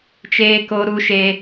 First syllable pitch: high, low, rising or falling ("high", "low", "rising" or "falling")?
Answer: high